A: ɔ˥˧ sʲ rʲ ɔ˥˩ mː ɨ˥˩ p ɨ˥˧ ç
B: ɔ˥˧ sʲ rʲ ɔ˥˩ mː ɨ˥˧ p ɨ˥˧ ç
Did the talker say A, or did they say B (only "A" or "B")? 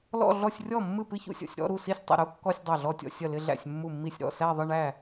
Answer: A